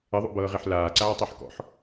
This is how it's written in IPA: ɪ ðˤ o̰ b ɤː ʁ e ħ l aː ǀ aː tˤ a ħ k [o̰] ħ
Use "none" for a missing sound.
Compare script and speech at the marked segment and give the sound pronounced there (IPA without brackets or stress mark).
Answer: ɔ̰